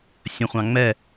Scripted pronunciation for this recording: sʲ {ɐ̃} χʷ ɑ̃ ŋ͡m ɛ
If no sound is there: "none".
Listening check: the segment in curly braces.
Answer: ə̃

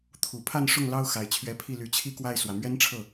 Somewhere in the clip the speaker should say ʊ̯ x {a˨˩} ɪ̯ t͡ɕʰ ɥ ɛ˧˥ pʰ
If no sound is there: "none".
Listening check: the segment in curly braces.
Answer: a˨˩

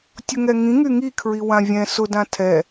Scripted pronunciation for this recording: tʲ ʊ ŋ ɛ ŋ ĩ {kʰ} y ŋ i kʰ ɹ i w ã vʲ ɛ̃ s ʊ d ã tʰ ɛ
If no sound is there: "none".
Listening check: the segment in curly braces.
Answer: ŋ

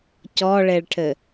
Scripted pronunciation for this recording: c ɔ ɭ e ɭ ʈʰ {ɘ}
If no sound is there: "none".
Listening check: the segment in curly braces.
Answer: ɘ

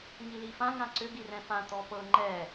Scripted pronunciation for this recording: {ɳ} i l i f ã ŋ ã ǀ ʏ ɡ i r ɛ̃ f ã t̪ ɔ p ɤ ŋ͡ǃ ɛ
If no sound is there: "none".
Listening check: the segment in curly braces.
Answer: ŋ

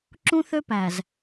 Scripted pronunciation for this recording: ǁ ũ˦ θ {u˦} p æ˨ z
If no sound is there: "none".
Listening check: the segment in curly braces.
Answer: ø˦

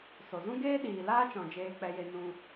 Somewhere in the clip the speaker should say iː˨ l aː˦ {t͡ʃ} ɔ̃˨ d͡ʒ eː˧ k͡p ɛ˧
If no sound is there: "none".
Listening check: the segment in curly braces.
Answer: t͡ʃ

